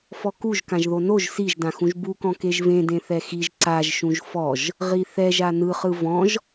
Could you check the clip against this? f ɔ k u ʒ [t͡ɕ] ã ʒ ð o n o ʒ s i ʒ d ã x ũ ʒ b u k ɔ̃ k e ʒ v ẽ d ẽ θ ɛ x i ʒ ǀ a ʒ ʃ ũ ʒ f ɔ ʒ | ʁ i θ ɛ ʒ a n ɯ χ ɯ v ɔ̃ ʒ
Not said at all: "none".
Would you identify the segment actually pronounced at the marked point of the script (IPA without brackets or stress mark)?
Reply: k